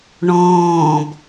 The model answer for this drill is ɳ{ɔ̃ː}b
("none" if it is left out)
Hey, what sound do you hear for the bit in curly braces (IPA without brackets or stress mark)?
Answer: ɔ̃ː